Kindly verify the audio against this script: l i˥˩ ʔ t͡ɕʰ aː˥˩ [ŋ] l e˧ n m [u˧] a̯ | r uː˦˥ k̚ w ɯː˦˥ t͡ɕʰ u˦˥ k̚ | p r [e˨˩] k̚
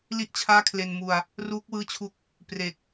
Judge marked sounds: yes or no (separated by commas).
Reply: no, yes, yes